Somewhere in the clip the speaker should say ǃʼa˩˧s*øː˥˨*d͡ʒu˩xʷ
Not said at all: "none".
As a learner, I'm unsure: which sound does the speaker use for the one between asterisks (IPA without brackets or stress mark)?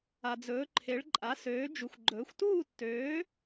øː˩˧